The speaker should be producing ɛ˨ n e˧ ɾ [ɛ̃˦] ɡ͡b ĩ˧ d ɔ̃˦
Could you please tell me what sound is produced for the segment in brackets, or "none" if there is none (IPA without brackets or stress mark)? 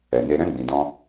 ɛ̃˦